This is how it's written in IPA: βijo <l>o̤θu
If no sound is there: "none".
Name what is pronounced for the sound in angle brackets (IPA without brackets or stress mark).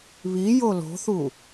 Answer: l